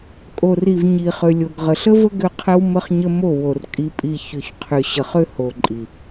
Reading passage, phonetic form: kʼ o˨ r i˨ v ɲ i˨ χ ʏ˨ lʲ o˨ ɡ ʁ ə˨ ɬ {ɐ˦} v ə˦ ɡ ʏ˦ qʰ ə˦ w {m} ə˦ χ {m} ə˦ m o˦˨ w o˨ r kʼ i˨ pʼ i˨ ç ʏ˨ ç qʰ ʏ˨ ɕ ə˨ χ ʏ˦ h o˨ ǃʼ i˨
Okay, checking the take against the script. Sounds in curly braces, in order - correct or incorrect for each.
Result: incorrect: ə˦, correct, incorrect: ɲ

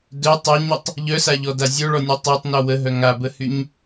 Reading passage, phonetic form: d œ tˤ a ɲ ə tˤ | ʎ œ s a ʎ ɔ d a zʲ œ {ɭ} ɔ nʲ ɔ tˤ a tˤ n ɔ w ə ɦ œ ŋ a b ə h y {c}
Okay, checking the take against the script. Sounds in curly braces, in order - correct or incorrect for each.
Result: correct, incorrect: ɲ

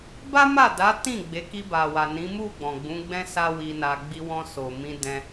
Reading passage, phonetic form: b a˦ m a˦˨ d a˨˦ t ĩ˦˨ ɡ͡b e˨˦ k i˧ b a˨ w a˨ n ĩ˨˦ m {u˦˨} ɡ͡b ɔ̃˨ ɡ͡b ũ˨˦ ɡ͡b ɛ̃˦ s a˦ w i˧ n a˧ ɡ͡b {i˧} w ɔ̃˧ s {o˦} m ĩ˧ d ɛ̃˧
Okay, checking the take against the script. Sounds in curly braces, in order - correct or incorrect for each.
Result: correct, correct, incorrect: o˨

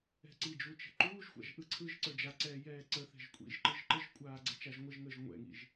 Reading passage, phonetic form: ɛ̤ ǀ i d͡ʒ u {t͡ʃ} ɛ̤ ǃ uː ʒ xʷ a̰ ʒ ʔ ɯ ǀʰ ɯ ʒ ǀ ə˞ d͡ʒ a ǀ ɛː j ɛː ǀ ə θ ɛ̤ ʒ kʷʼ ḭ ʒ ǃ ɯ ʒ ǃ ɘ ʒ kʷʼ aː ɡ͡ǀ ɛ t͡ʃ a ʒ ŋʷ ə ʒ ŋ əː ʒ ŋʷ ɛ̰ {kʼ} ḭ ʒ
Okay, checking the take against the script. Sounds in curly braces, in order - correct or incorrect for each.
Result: correct, incorrect: ŋ

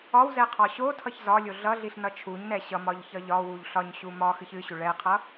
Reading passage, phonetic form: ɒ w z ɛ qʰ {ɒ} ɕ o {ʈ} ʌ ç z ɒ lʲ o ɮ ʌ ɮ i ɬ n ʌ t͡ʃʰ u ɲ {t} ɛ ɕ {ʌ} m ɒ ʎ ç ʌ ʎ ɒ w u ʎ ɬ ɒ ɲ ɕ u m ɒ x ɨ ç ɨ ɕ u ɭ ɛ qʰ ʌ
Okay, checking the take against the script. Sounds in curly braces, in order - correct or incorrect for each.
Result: correct, incorrect: tʰ, incorrect: n, correct

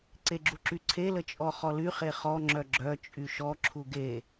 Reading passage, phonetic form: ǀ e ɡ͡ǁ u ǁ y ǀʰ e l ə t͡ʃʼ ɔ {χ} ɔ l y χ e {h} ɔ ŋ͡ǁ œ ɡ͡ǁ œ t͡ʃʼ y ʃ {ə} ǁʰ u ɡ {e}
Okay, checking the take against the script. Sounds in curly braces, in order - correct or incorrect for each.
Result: correct, incorrect: χ, incorrect: ɔ, correct

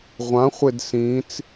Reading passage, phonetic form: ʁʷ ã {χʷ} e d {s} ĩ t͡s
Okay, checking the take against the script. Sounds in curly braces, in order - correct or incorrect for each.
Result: correct, correct

